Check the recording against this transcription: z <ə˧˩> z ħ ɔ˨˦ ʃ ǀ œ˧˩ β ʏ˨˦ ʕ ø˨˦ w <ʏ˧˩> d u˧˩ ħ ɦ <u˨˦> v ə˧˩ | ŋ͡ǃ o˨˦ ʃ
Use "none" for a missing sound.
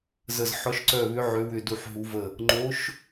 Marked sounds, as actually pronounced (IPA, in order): ə˧˩, ʏ˧˩, u˨˦

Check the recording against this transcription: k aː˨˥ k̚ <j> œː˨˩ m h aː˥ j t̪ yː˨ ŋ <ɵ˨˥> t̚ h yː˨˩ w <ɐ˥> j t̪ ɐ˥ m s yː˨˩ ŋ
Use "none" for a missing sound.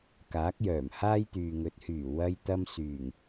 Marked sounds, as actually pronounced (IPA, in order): j, ɵ˨˥, ɐ˥

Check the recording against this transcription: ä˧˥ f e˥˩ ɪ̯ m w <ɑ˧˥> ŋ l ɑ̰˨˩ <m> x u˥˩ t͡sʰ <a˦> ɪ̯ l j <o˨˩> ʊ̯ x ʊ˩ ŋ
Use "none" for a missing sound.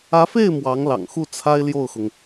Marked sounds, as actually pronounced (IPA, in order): ɑ˧˥, ŋ, a˥, o˥˩

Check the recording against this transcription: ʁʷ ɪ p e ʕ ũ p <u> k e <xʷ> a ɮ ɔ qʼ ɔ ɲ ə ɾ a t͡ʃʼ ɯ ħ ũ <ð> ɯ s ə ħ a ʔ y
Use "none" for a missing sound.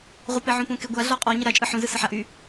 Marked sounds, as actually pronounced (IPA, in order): ũ, ɡʷ, z

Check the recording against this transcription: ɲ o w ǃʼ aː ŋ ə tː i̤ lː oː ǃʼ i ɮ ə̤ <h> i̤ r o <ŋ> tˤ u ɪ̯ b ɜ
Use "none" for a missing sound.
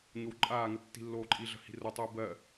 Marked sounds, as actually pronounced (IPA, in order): h, none

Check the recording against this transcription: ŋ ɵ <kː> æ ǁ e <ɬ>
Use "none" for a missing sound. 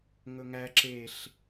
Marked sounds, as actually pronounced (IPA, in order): ŋ, ɬ

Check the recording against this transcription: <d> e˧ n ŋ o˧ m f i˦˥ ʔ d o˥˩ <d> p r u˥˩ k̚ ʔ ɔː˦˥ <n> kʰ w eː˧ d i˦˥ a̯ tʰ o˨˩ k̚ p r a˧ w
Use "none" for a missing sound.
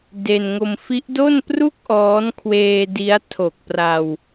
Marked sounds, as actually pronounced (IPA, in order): d, n, n

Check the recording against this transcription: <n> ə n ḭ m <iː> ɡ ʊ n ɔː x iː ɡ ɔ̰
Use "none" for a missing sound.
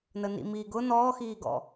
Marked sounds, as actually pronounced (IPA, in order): n, iː

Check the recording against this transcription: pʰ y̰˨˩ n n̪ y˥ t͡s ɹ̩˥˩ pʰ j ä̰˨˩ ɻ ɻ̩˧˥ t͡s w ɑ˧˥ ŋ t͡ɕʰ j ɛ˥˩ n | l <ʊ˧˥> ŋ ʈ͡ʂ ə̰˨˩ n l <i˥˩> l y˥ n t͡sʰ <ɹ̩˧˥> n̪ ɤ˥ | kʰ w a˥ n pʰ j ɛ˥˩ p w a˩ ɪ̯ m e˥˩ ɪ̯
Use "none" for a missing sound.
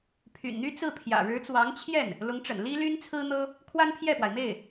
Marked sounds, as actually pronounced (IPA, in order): ʊ˧˥, i˥, ɹ̩˥

